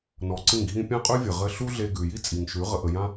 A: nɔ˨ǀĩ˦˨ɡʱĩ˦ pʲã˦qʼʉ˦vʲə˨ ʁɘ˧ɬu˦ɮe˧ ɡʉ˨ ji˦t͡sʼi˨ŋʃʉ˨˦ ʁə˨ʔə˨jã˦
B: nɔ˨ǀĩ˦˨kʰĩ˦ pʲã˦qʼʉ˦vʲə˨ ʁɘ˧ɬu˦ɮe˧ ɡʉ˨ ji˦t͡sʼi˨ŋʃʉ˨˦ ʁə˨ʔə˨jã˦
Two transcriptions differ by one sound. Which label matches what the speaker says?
A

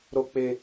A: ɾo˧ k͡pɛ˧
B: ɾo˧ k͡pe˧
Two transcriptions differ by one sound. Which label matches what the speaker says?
B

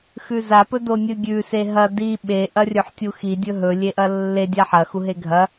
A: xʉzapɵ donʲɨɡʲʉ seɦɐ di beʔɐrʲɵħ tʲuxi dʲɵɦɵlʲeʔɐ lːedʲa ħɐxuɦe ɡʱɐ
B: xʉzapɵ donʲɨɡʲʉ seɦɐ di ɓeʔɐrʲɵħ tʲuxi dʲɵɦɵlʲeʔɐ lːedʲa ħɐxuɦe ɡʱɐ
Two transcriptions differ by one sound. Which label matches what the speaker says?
B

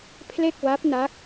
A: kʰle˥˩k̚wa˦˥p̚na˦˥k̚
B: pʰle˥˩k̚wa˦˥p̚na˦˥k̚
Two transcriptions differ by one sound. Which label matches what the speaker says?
B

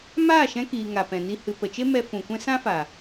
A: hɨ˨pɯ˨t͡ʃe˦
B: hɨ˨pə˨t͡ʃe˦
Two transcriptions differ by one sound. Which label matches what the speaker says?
B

